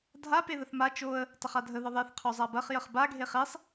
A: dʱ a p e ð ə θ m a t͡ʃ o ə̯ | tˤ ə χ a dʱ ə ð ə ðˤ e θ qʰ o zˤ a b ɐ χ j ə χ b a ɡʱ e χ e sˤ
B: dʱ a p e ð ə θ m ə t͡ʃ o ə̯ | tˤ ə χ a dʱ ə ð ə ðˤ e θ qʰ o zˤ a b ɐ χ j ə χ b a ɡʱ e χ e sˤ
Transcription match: A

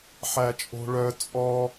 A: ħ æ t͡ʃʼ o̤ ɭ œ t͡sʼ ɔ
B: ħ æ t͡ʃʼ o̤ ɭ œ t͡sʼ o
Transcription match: A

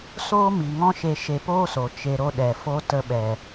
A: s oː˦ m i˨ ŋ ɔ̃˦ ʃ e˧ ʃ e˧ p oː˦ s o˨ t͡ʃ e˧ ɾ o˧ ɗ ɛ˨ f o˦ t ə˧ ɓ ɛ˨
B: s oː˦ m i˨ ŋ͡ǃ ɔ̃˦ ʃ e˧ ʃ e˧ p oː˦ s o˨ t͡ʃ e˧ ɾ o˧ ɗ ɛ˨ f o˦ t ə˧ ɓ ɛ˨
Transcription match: A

